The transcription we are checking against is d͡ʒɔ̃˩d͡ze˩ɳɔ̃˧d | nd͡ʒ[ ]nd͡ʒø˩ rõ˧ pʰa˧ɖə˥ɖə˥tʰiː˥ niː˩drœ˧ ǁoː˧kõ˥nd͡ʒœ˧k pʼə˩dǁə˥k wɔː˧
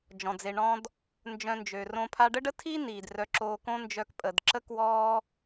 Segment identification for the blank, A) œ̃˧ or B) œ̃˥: A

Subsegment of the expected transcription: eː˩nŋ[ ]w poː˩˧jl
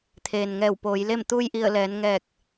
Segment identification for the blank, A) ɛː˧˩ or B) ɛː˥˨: A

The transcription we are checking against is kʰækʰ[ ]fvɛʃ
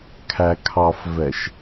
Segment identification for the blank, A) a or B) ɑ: B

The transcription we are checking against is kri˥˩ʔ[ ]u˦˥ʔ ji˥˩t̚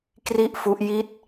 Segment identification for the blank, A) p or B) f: B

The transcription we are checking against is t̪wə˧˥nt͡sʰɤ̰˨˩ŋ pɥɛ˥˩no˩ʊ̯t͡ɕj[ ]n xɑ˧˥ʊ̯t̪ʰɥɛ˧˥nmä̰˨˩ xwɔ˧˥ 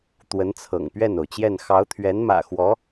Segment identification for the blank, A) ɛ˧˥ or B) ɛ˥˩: B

